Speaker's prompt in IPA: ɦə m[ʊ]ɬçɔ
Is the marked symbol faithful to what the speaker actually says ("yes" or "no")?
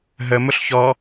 yes